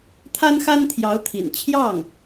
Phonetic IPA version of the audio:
t̪ʰa˥nxa˥n t̪ʰjɑ˧˥ʊ̯t̪ʰḭ˨˩n t͡ɕʰjɑ˥˩ŋ

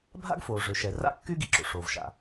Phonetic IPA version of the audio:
bʱa̰˥ɡfoː˩ ʐø˩ʃɛ˩ ra̰˥ kːy˥ ɡi˩ǁo̰˩ ʂoː˩vʃa̰˩

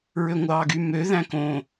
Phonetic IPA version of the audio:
ɹøŋʷɑːɡymø ðæ̃kõ

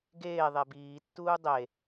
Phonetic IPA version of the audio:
ɡeː ðˤebiːtːuː dˤe

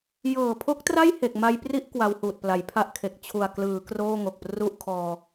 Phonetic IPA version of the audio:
jɤː˨˩pʰo˦˥k̚tra˥˩j he˨˩k̚ma˧jpri˥˩ʔ kwa˧whuː˨˩t̚pla˩˦j pʰa˥˩ʔkʰe˨˩k̚ t͡ɕʰu˨˩a̯klɯː˩˦ kroː˥˩ŋo˨˩k̚pru˥˩ʔ kʰɔː˧

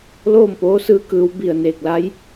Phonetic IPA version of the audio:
loː˥˨m poː˧˥sɯː˧˥kɯː˩˧w bi˧˩ə̯neː˧˩k̚la˧˥j

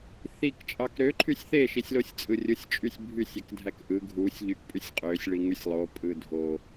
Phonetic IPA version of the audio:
θik t͡ʃʼɑkɾø ǃʰysʲθe ʃisʲlosʲt͡sʼɯrʲɯsʲ t͡ʃʼysʲbʱysʲ ekdʱækʔɯ ɡʱusʲ ʎykpʼysʲqʼøsʲ ɭiŋysʲlˠo pʼɯdʱo

